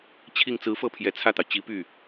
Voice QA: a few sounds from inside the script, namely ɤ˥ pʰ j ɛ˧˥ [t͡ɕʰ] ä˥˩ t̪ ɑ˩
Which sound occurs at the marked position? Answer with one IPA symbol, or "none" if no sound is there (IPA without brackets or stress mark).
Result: t͡sʰ